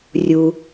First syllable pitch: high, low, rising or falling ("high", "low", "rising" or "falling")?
low